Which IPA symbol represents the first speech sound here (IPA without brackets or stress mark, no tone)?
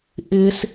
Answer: ʔ